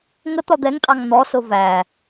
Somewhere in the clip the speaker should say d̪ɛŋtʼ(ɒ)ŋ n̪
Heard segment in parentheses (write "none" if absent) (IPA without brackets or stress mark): ɑ